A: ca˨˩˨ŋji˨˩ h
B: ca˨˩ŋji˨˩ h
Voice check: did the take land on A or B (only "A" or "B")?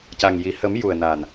B